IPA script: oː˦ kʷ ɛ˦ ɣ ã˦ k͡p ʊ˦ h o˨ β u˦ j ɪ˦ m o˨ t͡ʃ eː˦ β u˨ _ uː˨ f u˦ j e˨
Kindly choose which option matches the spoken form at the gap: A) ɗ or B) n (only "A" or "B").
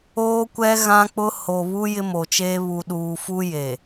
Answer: A